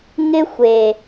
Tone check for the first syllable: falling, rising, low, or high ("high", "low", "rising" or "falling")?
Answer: high